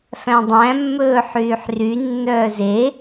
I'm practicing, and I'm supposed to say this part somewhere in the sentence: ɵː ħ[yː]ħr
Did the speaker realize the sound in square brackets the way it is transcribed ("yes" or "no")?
yes